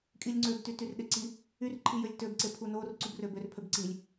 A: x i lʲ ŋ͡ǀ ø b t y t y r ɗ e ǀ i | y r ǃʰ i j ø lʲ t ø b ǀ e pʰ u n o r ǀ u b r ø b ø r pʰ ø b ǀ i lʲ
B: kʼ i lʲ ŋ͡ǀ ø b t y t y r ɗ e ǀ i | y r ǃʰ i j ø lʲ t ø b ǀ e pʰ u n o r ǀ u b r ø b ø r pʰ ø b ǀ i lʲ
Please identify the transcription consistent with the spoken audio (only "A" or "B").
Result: B